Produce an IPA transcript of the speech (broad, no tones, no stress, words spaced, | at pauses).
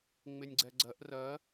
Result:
ŋ͡mɪnʲɡ͡ǀɛɡ͡ǀɜʔ rɜ